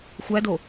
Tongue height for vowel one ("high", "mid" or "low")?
low